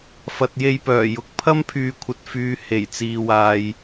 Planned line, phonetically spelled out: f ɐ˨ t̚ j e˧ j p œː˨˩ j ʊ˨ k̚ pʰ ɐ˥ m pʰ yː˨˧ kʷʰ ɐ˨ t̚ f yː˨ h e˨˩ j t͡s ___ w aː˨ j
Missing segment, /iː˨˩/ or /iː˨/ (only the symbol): iː˨